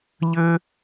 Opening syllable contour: high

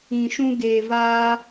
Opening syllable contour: low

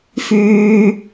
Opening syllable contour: high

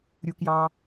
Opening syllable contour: low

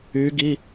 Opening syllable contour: rising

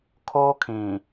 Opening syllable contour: high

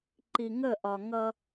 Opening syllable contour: low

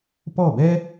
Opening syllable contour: falling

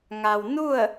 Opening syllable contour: low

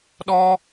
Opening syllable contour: high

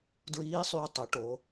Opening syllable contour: rising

